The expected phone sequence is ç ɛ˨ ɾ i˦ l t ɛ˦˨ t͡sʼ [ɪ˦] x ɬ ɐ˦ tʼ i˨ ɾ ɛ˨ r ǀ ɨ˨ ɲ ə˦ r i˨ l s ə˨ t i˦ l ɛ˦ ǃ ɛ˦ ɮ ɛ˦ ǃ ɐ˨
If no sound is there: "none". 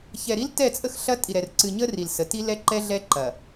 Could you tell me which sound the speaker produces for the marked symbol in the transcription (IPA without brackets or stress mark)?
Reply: ə˦